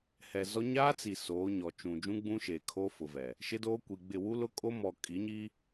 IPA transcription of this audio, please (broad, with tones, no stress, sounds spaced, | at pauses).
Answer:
h ɛ˨ z ɔ˦ ɲ aː˦ t͡s i˨ s oː˨˦ ɲ ɔ˨ t͡ʃ ũ˨ d͡ʒ ũ˦ ɡ͡b ũ˦ ʃ eː˨ kʰ oː˦ f ʊ˨ v ɛ˨ | ʃ ɪ˦ d oː˦ kʷ i˨ ɡ͡b ɪ˦˨ w u˦ l ʊ˦ kʼ o˦ m ɔ˨ kʼ i˨˦ ɲ i˦